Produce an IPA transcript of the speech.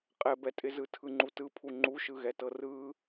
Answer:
qʼɛbɛtʼɪzɯ tʰɯŋ͡ǃutɯpʰu ŋ͡ǃuʃɯɣɛtɤ rɯ

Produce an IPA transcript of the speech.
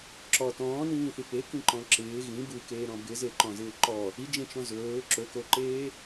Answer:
ǁɔ tɔ̃ːnĩːθi pekĩǃɔ̃ ǁɪː ɣĩ bukeːɾɔ̃ bɪzeǃɔ̃zɪː ǃɔ | id͡ʒẽt͡ʃɔ̃ zɵː ǁɵkoǃeː

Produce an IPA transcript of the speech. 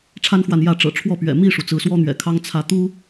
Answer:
ʈ͡ʂʰa˦nxwa˨n jä˥˨ ʈ͡ʂɤ̰˨˩ʈ͡ʂʰwɔ˥˨pɥɛ̰˨˩ mi˥˨ʂu˩ t͡sɹ̩˨˦swɔ˦n̪ɥɛ̰˨˩kʰɑ˦ŋ t͡sʰä˨˦t̪u˦

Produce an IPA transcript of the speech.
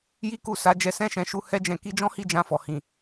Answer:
ji˦ku˦˨sa˨˦ d͡ʒɛ˧sɛ̃˦ʃɛ̃˧ʃu˧ hɛ˦d͡ʒɛ̃˧ ki˧d͡ʒɔ̃˦hi˦˨ d͡ʒã˧fɔ˨ hĩ˨

